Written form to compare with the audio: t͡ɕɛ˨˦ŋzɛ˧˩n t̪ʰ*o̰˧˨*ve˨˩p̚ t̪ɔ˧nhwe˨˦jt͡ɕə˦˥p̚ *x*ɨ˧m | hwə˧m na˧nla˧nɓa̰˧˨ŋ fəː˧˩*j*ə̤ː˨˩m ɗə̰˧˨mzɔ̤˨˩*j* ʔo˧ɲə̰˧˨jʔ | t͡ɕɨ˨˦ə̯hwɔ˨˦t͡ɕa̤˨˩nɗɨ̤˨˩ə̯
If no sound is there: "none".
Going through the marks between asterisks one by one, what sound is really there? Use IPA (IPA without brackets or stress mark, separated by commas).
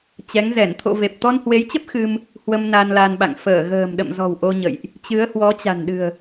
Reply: o̰˧˨, x, ɣ, w